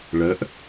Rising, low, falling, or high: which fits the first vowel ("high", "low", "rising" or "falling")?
rising